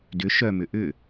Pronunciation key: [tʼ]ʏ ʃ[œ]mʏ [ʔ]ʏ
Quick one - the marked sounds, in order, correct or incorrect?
incorrect, correct, correct

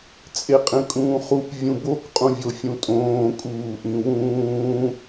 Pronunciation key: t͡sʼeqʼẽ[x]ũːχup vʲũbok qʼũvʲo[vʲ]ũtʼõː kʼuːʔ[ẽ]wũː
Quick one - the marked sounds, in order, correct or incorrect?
incorrect, incorrect, incorrect

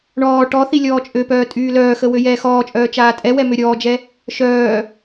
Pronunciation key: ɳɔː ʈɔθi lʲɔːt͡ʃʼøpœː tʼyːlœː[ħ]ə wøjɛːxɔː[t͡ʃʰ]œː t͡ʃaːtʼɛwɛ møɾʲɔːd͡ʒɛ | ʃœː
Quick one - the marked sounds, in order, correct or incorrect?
incorrect, incorrect

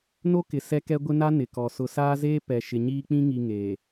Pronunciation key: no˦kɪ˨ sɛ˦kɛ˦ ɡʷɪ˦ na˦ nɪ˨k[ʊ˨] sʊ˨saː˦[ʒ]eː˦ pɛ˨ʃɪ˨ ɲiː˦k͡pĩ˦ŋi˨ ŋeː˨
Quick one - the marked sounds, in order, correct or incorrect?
incorrect, incorrect

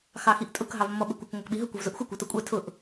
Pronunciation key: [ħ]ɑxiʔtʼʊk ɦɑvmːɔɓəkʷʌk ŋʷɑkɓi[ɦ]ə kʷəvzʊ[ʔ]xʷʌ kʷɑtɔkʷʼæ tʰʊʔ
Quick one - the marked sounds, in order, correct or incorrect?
incorrect, correct, correct

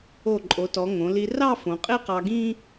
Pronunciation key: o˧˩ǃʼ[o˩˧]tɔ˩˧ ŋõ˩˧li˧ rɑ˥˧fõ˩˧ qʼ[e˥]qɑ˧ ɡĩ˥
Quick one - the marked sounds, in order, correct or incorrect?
correct, correct

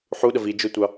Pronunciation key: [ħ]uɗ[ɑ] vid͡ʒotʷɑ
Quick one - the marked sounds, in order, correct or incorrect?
correct, incorrect

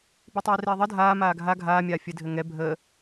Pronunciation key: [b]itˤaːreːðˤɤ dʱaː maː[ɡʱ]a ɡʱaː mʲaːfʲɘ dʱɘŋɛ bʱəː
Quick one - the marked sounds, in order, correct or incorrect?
correct, correct

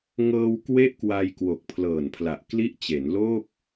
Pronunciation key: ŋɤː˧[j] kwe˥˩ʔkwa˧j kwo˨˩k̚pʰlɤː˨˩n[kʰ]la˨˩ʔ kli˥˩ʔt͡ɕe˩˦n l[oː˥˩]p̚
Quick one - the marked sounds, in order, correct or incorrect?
incorrect, incorrect, correct

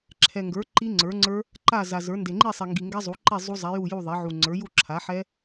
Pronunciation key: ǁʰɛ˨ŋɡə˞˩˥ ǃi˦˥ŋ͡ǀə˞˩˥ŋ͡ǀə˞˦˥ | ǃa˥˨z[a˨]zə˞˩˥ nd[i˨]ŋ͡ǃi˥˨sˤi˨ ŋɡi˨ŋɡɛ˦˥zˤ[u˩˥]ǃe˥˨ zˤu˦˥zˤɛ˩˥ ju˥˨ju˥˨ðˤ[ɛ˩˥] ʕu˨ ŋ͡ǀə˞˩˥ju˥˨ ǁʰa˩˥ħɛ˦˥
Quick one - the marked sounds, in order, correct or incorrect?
correct, incorrect, correct, incorrect

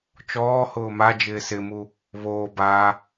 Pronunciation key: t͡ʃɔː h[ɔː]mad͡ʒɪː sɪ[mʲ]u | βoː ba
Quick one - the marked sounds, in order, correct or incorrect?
incorrect, incorrect

